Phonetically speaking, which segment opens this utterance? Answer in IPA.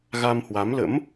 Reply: ɣ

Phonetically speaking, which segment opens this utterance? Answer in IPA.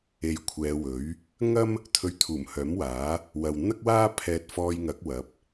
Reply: e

